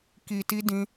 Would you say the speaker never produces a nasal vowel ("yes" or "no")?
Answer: no